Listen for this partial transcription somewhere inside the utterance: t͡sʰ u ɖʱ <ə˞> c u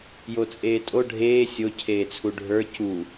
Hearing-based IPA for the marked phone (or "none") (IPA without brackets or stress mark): ə˞